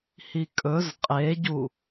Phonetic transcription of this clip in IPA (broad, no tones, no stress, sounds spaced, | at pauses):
h i kʼ ɵ z qʼ e ɟ u